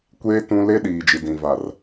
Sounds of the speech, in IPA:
kʷe˦ tũ˦ le˦ɗiː˨ d͡ʒi˨dĩ˨va˨r

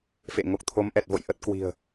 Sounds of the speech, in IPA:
fḛ˧˨ ŋo˨˩k̚t̪ʰo˨˦mʔɛ˨˩t̚vo̰˧˨j ʔə˦˥t̚kwi̤˨˩ə̯

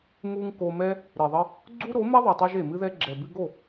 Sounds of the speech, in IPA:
mu˧ŋ ko˧mɛ˦ | ɾe˨ðˤɘ˧ | ɡ͡ǀu˦ɾo˨˦ mɛ˦ðˤɨ˨tˤɛ˧ʒ e˨mɨ˦ðɛ˦ ɡ͡ǁɛ˨bɨ˧ɡo˦˨

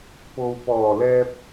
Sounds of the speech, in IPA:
po˨wpɔː˨˩lɛː˧p̚

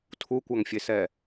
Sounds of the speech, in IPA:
tʰukʷaŋfʲesɛ

